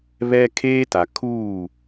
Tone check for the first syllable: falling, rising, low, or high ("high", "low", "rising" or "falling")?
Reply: high